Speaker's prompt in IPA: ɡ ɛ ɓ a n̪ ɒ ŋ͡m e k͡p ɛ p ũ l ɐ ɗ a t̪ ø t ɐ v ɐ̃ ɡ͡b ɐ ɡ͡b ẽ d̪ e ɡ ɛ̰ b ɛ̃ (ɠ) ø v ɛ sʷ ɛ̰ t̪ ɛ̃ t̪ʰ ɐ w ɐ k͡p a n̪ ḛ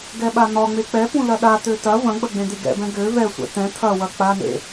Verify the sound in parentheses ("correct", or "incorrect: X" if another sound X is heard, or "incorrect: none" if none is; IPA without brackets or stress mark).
incorrect: ɡ